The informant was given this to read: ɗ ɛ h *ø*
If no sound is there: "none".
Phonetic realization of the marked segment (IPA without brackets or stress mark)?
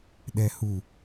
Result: u